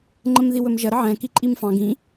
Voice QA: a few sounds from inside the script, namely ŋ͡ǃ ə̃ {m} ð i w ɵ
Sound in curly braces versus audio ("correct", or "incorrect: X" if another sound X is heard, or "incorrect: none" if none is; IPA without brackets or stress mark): correct